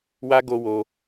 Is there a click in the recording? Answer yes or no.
no